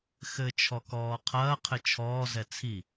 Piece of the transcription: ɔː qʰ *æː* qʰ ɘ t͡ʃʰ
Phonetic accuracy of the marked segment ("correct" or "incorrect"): incorrect